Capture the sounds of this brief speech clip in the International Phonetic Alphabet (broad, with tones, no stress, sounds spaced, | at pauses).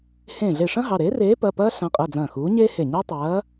h ẽː˧˩ ɮ e˧˩ ʂ ɐ̃˥ ɦ ɑ˩˧˩ ɾ e˨˥ r eː˨˥ p ɐ˩˧˩ p ɐː˥ ɬ ã˨˥ qʼ ɐ˩˧˩ d͡z ɐ̃ː˧˩ x uː˨˥ ɲ eː˥ h e˧˩ ɲ ɑ˥ tˤ ɐː˨˥